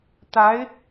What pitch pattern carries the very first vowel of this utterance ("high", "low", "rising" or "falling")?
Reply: rising